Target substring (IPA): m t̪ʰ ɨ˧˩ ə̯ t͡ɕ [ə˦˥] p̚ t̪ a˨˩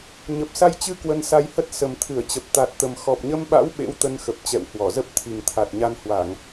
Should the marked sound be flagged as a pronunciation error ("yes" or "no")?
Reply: yes